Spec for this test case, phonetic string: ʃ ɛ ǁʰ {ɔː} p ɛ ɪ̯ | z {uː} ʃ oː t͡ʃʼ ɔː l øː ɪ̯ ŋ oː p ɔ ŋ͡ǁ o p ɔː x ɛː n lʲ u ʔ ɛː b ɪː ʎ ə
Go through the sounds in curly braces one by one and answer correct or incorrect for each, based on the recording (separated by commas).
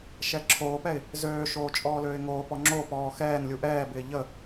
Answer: incorrect, incorrect